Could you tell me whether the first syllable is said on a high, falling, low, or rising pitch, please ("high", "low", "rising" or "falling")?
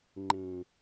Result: low